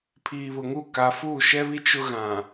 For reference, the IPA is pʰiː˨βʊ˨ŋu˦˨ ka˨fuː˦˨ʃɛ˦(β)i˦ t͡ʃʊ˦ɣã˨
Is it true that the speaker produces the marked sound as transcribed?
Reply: yes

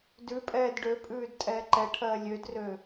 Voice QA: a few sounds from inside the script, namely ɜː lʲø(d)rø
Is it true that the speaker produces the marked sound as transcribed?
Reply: yes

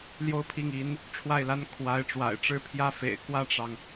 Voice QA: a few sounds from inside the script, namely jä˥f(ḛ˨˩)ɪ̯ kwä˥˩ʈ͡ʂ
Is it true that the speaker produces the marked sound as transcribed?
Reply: yes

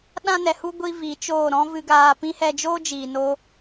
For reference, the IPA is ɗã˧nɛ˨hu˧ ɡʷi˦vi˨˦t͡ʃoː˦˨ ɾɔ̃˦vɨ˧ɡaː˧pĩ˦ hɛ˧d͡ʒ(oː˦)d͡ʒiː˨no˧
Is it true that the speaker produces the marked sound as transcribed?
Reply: yes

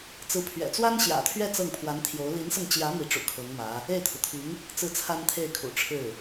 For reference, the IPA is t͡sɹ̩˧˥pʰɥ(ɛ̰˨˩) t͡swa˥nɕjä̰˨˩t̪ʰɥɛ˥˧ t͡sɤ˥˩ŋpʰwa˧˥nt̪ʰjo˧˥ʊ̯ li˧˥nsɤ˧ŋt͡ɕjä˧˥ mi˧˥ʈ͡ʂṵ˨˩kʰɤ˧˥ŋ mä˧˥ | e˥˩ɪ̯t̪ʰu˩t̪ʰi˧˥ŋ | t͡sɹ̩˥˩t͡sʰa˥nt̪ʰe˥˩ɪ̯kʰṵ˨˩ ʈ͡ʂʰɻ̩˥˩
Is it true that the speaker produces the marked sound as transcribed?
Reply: yes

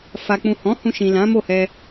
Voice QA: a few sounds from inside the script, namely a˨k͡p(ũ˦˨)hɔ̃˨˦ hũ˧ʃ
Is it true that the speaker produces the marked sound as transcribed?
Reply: no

